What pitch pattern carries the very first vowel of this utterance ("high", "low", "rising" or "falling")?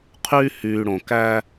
high